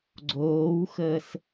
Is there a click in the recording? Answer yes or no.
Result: yes